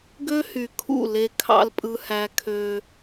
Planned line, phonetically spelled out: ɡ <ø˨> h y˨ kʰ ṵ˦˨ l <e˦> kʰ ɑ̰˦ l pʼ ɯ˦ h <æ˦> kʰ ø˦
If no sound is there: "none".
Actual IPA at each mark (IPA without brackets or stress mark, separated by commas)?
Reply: ø˦, e˦, æ˦